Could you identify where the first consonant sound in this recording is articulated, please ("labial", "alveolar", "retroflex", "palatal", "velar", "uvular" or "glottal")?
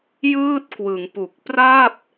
palatal